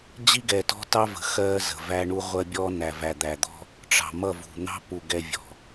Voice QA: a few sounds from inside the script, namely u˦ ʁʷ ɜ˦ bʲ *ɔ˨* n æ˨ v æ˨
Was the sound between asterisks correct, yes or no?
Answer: no